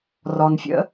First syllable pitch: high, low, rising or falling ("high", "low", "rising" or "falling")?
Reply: low